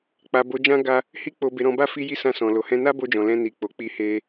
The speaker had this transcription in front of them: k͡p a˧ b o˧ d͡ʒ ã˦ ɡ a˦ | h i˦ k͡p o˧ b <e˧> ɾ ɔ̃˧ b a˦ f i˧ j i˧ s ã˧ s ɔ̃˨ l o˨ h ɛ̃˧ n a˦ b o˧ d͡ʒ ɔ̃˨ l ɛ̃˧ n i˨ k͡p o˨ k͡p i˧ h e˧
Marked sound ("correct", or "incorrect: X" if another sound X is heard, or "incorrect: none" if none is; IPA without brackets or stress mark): correct